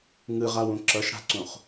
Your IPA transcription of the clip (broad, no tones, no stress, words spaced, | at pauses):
ŋɯʁawũ ǁʌʃɽa̤ǀũχ